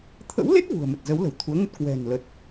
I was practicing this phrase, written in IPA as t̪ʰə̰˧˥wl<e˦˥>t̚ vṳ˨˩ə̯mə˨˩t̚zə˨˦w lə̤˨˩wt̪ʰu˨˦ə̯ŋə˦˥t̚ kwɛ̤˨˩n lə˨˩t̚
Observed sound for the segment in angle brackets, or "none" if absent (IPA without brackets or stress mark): e˦˥